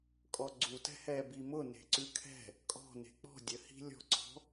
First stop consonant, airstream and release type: ejective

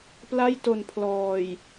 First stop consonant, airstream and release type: plain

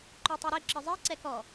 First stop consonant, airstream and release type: click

